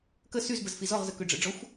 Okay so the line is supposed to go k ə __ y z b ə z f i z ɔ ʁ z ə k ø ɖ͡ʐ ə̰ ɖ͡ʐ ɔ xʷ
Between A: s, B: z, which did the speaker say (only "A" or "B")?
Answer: A